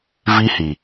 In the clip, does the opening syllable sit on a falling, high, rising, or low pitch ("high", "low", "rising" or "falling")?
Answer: high